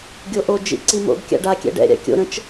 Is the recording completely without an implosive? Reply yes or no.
yes